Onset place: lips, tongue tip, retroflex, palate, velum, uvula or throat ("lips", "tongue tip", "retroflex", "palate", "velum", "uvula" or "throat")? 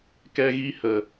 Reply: velum